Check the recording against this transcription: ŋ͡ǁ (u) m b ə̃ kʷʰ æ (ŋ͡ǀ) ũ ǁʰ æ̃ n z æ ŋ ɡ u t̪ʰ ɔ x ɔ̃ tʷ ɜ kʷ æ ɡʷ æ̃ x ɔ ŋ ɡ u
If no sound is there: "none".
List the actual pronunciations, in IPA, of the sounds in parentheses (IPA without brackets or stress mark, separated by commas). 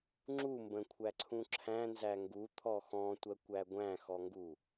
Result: u, ǀʰ